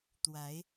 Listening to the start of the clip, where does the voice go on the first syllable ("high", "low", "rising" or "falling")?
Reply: rising